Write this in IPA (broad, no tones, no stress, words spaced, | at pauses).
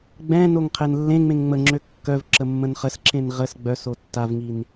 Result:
ɡ͡bɛ̃noŋ qʰenlːẽŋ͡mẽŋ ŋ͡məŋ͡ǁø kːœv ǁəmːə̃nχəsǁẽn ʁəs ɡ͡bœso tːavŋin